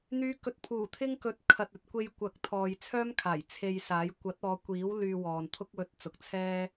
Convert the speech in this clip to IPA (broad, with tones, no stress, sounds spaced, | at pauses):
n̪ yː˨˧ k ɵ˨ t̚ pʰ uː˨˩ t̪ʰ ɪ˥ ŋ k ɵ˨˥ t̚ kʰ ɐ˨ t̚ ɵ˨ t̚ kʷ e˧ j kʷ ɐ˨˥ k̚ t̪ʰ ɔː˨ j t͡sʰ œː˥ m kʰ aː˨˩ j t͡sʰ e˧ j s aː˨˥ j kʷ ɐ˨˥ t̚ ɔː˨˧ kʷ iː˨˥ w l yː˧ w ɔː˨ n t̪ʰ ʊ˥ k̚ w ɵ˧ t̚ t͡s ʊ˨ k̚ t͡sʰ ɛː˥